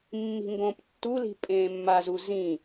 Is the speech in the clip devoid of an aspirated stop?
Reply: yes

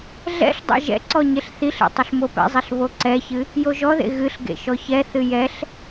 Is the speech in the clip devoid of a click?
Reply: no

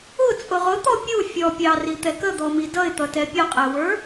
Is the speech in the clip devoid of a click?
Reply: yes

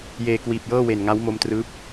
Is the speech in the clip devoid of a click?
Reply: yes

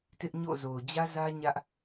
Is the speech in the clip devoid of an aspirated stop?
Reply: yes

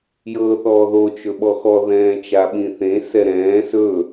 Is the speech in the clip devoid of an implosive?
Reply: no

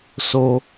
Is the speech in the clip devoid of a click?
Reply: yes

